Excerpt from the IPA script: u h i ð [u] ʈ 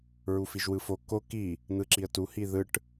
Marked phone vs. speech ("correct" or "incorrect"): incorrect